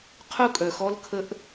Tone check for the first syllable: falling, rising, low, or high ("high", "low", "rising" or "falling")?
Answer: high